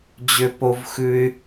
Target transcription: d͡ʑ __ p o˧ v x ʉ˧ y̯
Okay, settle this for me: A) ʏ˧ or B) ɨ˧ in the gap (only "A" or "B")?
A